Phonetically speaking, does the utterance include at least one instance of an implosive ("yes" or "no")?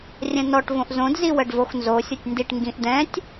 no